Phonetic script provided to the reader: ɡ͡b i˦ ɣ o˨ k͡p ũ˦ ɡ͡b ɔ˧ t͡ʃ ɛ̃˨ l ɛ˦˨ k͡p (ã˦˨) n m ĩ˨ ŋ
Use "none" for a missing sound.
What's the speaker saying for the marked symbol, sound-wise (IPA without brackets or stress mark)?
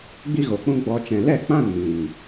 ã˦˨